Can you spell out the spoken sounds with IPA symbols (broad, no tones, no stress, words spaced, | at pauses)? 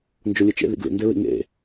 nd͡ʒolʲɨt͡ʃḛ ðḭɡlḭ ndeɹḭŋḛ